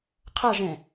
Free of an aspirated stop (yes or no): no